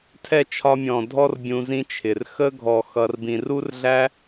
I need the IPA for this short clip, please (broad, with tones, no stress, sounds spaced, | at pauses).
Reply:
tʰ ɛ˦˨ t͡ʃʰ ɒ˧ mʲ ɔ̃˨ dʱ ɔ˧ r bʲ ũ˧ z ĩ˦ t͡ʃʰ ɪ˨ r x ə˦ ɡʱ ɔ˨ x ʌ˨ r b ĩ˨ r u˦ r ɮ æ˦